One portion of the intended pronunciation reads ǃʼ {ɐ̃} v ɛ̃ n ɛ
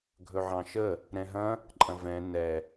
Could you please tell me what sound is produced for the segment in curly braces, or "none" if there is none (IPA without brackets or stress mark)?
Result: ɐ̃